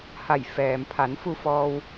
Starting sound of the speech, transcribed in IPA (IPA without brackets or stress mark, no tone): h